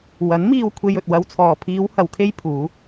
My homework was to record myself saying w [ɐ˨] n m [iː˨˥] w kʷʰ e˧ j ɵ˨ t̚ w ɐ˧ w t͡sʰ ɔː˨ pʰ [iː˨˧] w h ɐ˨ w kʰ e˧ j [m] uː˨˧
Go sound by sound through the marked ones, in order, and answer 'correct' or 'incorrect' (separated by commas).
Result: incorrect, incorrect, correct, incorrect